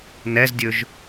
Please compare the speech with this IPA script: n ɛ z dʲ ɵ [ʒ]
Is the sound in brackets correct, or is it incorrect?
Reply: correct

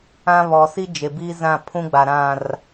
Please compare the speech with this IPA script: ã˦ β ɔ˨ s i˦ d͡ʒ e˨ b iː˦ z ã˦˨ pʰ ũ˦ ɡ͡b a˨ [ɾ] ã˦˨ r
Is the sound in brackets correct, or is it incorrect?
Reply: correct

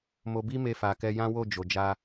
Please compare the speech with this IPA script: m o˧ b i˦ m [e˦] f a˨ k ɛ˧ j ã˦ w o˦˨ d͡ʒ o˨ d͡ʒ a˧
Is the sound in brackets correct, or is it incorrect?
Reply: incorrect: e˧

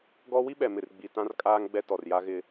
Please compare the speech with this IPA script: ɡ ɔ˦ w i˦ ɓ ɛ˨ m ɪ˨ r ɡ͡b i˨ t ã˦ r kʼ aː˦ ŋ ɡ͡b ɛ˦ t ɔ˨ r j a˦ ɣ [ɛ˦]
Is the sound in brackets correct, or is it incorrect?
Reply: incorrect: ɪ˦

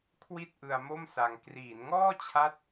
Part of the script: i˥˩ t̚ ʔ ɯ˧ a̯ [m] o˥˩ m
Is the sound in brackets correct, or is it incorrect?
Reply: correct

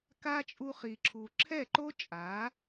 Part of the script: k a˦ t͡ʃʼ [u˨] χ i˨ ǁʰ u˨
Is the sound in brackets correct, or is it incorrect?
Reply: incorrect: u˧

